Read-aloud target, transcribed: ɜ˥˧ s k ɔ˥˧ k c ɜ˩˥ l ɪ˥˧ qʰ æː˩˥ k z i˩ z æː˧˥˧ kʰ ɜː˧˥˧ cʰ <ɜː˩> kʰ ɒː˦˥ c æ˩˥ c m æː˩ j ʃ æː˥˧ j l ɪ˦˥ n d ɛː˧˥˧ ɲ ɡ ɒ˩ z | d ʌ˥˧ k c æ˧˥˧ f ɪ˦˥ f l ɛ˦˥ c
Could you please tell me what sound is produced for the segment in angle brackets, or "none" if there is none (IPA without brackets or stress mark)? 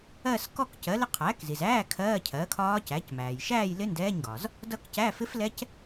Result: ɜː˩˥